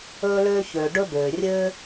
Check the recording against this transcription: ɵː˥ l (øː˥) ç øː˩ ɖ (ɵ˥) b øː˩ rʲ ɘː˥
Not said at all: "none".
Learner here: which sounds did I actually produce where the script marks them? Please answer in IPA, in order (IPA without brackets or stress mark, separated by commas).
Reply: øː˥, ɵ˥